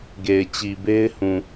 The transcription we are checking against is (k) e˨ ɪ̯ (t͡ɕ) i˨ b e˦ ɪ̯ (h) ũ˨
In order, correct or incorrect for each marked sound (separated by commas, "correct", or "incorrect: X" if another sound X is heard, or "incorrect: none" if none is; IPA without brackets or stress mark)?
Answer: incorrect: ɡ, correct, correct